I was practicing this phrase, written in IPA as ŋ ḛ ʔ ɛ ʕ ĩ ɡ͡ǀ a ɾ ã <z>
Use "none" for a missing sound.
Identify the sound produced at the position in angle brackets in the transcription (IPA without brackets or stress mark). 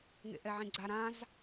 z